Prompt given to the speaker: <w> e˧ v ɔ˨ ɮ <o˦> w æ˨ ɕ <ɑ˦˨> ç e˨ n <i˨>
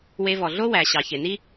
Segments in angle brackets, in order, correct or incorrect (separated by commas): correct, correct, incorrect, incorrect